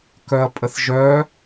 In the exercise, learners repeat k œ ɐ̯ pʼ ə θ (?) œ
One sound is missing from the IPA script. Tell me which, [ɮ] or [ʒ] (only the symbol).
ʒ